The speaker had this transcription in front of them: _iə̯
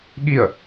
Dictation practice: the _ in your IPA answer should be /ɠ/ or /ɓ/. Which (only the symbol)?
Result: ɠ